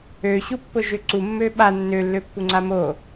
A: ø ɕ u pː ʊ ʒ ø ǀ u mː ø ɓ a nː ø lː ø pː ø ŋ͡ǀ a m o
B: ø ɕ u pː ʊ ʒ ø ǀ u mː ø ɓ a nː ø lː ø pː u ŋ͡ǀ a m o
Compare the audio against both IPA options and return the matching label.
B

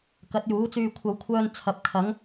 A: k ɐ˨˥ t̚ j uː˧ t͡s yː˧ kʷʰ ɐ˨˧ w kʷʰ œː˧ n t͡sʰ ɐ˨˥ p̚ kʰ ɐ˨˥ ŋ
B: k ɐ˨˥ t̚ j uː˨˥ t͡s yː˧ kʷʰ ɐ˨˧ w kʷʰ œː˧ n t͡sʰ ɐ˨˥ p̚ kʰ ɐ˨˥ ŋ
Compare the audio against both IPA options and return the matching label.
B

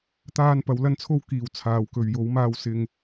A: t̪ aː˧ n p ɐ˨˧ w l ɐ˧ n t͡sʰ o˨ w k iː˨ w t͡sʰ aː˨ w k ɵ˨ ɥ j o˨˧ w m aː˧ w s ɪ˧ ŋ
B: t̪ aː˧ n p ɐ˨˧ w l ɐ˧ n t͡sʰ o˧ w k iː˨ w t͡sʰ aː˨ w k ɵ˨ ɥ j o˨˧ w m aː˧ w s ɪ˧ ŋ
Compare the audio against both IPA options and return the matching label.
B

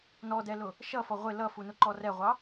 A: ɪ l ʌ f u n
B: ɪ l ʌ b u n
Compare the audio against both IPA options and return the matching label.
A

